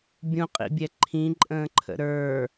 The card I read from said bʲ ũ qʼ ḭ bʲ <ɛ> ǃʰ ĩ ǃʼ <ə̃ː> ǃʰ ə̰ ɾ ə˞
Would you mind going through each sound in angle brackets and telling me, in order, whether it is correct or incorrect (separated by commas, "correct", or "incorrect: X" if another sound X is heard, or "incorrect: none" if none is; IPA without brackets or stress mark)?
correct, correct